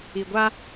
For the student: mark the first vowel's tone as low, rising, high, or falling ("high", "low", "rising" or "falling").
low